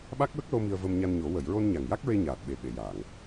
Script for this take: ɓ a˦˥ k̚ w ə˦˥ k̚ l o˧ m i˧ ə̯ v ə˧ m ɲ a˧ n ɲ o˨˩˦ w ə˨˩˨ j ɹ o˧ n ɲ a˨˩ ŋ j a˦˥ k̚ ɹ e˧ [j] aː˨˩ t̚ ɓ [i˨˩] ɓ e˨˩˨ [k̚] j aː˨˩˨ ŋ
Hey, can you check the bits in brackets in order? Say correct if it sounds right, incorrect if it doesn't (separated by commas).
incorrect, incorrect, incorrect